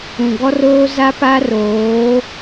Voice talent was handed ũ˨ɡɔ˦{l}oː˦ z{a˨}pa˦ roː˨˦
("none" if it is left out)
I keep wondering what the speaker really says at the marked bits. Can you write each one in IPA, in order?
r, a˦

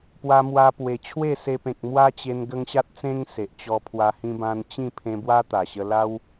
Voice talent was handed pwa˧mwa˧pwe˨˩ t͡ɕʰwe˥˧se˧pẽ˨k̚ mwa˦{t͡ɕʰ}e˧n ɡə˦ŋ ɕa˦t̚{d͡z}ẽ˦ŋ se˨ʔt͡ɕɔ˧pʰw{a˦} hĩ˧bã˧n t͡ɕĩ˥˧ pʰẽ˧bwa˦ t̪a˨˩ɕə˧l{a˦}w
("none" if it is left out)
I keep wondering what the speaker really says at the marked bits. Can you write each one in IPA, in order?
t͡ɕ, t͡s, a˧, a˦

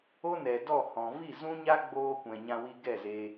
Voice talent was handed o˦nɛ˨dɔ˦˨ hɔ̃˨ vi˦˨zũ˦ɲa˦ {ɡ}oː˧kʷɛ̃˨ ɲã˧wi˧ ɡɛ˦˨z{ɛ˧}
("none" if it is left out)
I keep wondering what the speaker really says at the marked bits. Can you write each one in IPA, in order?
ɡ͡b, e˧

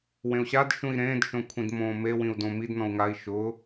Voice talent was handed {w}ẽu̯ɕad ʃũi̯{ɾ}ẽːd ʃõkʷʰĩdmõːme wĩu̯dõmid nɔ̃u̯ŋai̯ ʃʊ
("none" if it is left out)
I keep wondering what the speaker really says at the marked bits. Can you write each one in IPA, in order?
w, ɾ

